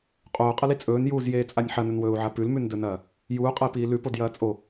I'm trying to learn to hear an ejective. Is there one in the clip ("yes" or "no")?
yes